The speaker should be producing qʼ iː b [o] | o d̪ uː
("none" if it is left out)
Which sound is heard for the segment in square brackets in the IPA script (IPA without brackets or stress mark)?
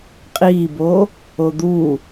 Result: oː